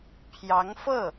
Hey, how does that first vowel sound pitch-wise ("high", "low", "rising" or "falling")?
rising